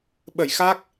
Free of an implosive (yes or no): no